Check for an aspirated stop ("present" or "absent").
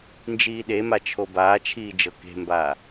present